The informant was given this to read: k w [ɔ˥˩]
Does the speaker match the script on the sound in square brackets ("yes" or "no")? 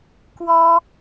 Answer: no